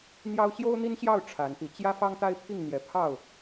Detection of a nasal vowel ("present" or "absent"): absent